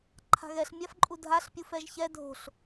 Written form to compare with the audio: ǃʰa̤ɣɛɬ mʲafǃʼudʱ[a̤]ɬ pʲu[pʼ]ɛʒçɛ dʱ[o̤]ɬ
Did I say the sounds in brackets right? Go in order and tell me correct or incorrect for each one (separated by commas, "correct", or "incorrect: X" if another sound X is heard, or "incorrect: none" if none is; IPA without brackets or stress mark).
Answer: incorrect: a, incorrect: f, correct